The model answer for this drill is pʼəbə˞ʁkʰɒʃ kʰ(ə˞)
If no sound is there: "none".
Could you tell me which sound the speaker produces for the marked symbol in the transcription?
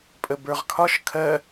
ɜ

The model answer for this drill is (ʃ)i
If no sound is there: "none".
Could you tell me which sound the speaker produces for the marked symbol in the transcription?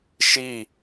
ʃ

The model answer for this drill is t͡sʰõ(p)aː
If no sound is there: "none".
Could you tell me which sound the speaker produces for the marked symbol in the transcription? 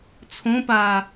p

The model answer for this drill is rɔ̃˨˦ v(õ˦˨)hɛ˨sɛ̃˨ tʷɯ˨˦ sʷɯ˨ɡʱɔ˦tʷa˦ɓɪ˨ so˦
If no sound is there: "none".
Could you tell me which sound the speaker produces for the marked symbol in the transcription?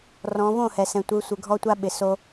õ˦˨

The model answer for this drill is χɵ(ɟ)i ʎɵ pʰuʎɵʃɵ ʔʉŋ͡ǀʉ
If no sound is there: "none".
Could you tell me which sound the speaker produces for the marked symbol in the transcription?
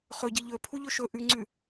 ɟ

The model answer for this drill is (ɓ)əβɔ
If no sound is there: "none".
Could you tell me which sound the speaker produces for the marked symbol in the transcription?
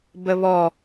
b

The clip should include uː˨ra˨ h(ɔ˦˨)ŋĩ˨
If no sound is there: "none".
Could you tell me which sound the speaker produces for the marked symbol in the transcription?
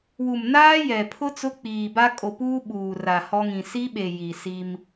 ɔ˦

